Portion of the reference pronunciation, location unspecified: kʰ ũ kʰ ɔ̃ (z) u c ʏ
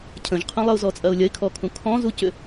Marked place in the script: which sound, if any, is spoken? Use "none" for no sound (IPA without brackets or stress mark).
z